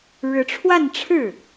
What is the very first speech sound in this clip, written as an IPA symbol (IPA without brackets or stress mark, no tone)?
ɻ